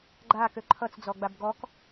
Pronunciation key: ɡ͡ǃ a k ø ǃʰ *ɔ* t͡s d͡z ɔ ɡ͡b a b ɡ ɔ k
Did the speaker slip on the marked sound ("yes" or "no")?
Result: yes